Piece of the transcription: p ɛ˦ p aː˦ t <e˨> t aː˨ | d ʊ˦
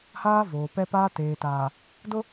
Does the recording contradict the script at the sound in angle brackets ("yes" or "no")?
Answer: yes